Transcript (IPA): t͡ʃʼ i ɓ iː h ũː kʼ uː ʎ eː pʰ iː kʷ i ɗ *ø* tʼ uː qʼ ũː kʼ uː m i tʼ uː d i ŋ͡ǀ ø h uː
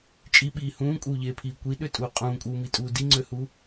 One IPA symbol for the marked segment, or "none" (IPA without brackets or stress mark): ø